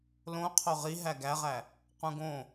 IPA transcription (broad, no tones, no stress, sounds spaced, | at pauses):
l õ qʰ o ʁ i ɦ æ ɡ æ ʁ æ | q ũ ɡ õ